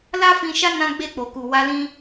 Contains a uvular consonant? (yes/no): no